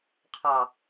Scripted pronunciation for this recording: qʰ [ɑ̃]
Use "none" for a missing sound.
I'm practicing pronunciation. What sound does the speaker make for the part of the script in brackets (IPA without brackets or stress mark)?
ɑ